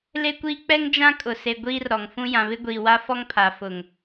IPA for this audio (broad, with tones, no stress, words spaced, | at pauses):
le˦kʷiː˦ k͡pɛ˦ŋd͡ʒã˦ kʼʊ˨se˨ɡʷiː˦rɾɔ˨ŋ fũ˦ jã˨βɪ˦ɡʷiː˨ wa˦fɔ˦ŋpʰa˨ fʊ˨ŋ